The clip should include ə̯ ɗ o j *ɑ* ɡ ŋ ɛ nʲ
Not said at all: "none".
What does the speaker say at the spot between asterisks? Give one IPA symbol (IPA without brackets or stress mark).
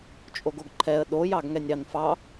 ɑ